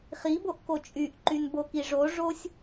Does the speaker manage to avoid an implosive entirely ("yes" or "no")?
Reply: yes